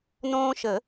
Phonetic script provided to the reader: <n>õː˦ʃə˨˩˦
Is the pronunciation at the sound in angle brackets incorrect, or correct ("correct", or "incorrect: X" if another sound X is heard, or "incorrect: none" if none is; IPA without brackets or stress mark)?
correct